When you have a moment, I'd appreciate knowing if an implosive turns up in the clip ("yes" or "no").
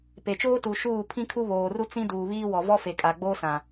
no